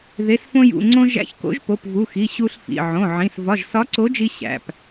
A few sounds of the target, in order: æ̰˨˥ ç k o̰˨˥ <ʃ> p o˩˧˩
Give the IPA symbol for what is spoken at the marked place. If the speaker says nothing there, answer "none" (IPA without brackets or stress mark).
ʒ